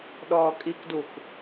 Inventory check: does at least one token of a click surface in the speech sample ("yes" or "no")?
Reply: no